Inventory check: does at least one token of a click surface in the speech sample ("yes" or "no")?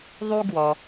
no